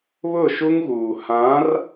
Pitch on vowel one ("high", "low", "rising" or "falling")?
falling